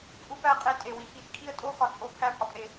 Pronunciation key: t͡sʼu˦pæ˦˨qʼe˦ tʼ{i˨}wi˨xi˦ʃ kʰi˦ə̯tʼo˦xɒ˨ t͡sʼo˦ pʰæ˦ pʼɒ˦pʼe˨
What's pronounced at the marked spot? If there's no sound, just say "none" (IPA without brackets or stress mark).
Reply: e˨